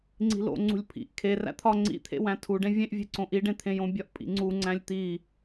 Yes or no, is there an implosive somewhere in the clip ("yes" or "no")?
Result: no